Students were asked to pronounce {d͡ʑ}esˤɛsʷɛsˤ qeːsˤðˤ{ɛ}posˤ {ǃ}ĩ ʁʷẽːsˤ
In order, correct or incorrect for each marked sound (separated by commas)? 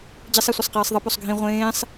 correct, incorrect, incorrect